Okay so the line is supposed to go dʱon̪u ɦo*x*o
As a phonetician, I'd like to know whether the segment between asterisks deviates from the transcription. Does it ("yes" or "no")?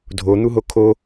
yes